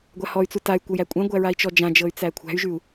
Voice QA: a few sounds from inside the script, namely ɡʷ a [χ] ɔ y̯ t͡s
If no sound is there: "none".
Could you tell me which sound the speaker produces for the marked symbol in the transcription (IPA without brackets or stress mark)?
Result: h